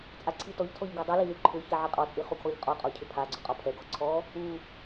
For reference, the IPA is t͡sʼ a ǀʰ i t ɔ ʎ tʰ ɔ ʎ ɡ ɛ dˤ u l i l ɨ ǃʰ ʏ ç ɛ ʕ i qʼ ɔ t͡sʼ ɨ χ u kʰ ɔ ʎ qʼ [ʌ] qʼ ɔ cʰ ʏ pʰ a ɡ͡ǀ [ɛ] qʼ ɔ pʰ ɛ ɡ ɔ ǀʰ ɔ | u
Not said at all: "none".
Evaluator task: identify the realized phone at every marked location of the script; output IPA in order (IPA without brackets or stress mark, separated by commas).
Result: ɔ, ʏ